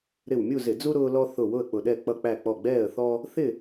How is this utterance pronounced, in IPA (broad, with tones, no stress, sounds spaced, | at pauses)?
ɾ ɪ˧˩ w mʲ u˥˨ z ɪ˧˩˧ d͡z u˦ ɾ ʊː˦ l ɔ˦ θ ʊ˧˩ w ʊ˥˨ ə̯ k͡p ʊ˧˩ ɗ ɛ˥˨ k͡p ʌ˥˨ k͡p æ˥˨ k͡p ɔ˧˩ ɡ͡b ɛː˥˨ ə̯ θ ɔ˦ | θ ɪ˥˨